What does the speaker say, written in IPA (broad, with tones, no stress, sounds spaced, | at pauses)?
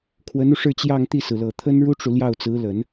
kʰ w ə˧˥ n u˧ ʂ ɻ̩˥˧ t͡ɕ j ɑ˥˧ ŋ t̪ i˥˩ s ɹ̩˩ l ɤ˨˩ t̪ʰ ə˥ n ɻ u˥ ʈ͡ʂ u˨ l j ɑ˥˩ ʊ̯ t͡s ɹ̩˧˥ l ə˨˩˦ n